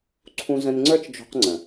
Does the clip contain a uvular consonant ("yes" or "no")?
yes